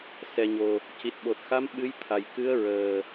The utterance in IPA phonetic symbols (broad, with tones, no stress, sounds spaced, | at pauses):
s ɛ˨˩ ɲ o˨˩ | c i˨˩ t̚ ɓ o˨˩ t̚ x a˧˥ m ɓ ɨ˧˥ j t̪ʰ a˨˩ j k ɨ˧˥ ə̯ ɹ əː˨˩